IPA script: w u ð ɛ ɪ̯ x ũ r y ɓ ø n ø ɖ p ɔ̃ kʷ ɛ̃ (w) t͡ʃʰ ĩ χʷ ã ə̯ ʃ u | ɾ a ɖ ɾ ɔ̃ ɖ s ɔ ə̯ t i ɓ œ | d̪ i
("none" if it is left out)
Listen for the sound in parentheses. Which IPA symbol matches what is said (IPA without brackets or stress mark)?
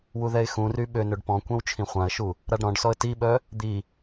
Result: w